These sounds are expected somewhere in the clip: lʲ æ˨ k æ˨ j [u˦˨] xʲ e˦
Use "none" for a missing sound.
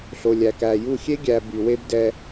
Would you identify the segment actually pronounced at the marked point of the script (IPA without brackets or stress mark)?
u˦˨